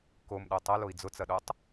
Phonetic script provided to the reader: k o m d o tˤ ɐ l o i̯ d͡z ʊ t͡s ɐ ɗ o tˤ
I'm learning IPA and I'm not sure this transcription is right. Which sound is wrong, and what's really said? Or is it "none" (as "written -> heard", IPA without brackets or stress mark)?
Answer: d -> ɗ